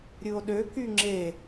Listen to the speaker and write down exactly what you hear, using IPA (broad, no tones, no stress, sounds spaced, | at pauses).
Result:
ɾʲ ɯ o̯ ɗ ø k y ŋ͡ǁ e